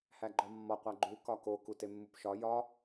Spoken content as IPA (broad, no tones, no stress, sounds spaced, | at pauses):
h æ ɡ͡ǃ ɒ mː ɒ qʷ æ ɡ͡ǃ u k ɒ k o k u t e mː u p ʃ ɒ j ɒ